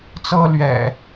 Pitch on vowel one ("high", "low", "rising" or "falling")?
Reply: high